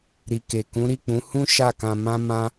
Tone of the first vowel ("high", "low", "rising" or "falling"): low